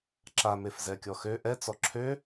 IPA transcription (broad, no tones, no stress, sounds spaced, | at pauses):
ǁ a m e f z ɛ kʲ ɔ x ø ʔ ɛ t͡s ɔ ǁʰ ø